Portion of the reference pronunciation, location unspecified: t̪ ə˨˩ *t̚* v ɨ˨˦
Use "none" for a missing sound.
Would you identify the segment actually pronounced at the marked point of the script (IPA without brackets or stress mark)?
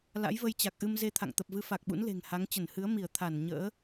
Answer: p̚